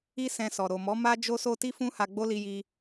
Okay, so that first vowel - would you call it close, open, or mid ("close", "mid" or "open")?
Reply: close